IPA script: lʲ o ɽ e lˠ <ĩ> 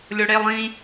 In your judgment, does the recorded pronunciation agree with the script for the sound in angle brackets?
yes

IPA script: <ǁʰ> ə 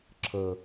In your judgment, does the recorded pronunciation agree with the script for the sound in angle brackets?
yes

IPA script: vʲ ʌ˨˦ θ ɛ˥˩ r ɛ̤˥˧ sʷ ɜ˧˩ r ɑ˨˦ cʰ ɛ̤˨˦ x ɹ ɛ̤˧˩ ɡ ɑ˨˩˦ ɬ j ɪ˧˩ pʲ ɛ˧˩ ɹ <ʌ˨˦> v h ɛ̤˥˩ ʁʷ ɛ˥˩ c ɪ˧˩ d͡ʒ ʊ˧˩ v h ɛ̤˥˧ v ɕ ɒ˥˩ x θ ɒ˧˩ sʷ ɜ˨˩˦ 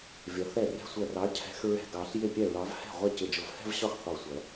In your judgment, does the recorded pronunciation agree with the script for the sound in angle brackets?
no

